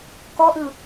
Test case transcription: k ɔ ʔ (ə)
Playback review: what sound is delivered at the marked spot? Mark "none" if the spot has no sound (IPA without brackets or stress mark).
ɯ